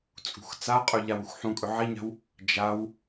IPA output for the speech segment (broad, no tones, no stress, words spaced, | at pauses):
t͡sʼṳxt͡saqʼɵ ʎawuxħũkʼɵ ʕiɲa̤w | d͡ʒaw